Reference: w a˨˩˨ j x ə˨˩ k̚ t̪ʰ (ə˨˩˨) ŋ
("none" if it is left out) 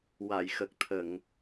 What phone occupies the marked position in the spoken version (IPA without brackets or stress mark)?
ə˨˩˨